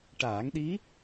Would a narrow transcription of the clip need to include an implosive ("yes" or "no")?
yes